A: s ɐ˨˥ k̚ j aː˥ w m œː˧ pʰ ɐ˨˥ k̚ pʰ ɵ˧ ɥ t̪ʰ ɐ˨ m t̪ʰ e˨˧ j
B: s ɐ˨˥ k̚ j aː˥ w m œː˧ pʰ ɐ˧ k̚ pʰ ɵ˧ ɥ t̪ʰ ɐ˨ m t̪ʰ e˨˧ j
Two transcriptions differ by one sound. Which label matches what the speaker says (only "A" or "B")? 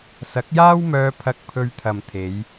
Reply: B